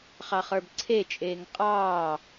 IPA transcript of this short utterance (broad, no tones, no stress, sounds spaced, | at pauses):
χ ɑ χ ə˞ b ǀʰ e t͡ʃʼ eː ŋ qʼ ɑː